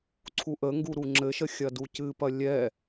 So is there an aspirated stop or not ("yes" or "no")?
yes